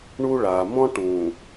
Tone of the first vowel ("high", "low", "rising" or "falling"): high